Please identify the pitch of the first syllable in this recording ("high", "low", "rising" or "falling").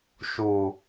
low